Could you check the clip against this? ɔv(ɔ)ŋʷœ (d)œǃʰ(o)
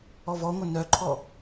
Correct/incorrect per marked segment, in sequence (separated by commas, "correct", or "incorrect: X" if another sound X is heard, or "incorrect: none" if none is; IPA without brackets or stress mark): correct, incorrect: n, incorrect: ɔ